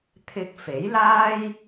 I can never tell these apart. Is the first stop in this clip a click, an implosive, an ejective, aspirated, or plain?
aspirated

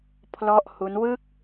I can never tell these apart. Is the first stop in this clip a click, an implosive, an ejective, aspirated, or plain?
aspirated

